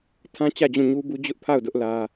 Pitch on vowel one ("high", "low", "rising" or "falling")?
high